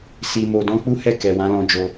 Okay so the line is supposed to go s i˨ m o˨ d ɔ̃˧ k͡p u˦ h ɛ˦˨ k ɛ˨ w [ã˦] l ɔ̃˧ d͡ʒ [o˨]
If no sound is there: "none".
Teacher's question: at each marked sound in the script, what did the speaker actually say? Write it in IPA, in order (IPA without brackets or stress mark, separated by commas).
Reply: ã˨˦, o˧